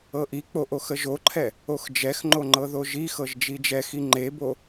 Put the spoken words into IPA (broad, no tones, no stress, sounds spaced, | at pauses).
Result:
ɤ ʔ i k͡p o ʔ o x ə ʒ o ǃʰ ɛ | o x d͡ʒ ɛ x ŋ͡ǃ o ŋ͡ǃ ɤ ð o ʒ i x ɤ ʒ d͡ʒ i d͡ʒ ɛ x i ŋ͡ǃ e b o